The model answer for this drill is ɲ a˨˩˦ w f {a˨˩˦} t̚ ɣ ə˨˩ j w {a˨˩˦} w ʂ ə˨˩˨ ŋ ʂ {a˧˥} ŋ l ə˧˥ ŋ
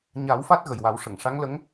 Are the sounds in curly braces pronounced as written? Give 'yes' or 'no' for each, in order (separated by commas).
no, yes, yes